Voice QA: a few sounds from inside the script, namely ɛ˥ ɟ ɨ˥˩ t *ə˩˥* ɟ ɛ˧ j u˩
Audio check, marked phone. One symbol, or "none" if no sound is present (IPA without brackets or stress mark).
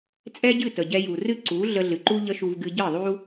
ə˩